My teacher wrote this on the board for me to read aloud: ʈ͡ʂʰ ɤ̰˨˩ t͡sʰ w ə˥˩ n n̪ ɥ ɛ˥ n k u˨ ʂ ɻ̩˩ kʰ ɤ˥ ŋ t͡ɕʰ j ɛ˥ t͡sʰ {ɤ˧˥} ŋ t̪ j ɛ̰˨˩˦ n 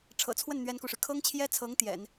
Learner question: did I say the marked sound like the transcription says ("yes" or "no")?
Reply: yes